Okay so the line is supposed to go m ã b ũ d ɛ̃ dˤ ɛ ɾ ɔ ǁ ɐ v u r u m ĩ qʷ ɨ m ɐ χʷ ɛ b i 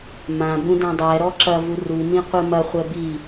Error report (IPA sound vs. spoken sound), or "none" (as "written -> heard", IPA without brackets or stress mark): none